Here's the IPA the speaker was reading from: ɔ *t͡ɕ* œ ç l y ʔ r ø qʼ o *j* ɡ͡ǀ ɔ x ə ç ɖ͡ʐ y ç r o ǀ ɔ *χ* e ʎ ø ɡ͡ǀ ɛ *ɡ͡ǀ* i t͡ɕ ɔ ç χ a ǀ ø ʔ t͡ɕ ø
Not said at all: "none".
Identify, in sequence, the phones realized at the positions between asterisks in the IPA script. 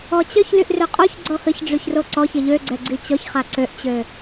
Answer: t͡ɕ, ç, ç, ɡ͡ǀ

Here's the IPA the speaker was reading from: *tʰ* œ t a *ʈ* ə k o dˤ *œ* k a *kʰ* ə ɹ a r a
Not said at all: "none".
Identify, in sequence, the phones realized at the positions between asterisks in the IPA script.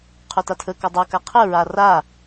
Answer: qʰ, tʰ, ɛ, qʰ

